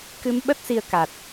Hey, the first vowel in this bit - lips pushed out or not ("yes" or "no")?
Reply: no